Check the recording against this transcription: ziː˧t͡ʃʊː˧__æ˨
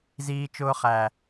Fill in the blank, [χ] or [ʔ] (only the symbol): χ